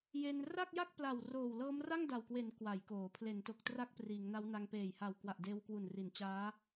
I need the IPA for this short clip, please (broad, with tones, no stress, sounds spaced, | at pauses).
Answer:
j e˧ n r a˥˩ k̚ j a˥˩ k̚ p l a˨˩ w r oː˨˩ w l ɤː˦˥ m r a˥˩ ŋ d a˨˩ w k w e˩˦ n k w a˩˦ j k oː˩˦ pʰ l e˩˦ n t o˨˩ k̚ t r a˥˩ k̚ p r iː˩˦ ŋ n a˦˥ w n a˧ ŋ p eː˨˩ j h a˨˩ w k w a˨˩ ʔ d eː˧ w k w u˨˩ n r i˩˦ n t͡ɕ aː˦˥